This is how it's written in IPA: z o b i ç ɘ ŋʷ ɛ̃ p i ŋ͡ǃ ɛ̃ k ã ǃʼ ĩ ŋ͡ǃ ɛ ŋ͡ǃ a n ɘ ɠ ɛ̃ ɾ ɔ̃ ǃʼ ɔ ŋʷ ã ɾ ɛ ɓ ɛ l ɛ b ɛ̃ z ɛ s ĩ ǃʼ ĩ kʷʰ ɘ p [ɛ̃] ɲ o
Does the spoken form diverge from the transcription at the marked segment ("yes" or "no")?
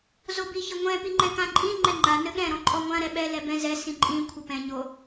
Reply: no